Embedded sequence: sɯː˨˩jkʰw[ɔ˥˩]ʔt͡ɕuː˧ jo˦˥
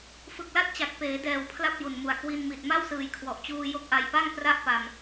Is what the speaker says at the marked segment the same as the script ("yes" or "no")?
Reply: no